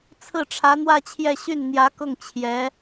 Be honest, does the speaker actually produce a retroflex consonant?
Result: yes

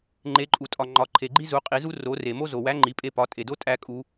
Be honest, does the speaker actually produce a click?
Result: yes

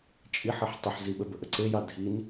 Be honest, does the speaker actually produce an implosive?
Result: yes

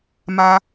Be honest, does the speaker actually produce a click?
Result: no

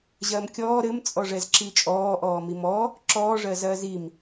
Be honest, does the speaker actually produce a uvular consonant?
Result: no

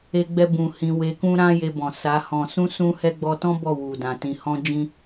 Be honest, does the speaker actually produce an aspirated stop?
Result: no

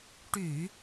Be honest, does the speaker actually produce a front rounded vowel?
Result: yes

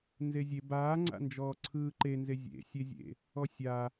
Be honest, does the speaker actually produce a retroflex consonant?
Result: no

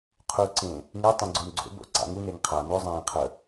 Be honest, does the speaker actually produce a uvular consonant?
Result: yes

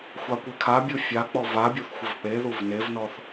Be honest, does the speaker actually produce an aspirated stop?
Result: yes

